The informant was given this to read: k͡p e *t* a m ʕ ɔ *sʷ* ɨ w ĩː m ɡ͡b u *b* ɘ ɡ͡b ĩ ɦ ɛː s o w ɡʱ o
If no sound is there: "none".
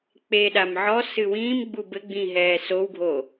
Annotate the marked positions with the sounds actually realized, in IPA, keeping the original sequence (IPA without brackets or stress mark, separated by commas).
ɗ, s, b